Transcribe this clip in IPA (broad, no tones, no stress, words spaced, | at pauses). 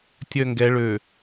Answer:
tʲœŋɡɛ ɭø